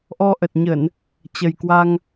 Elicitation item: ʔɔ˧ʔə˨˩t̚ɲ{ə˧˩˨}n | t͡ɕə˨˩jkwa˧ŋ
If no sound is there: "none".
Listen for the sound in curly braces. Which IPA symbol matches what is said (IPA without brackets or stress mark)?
ə˧˩˨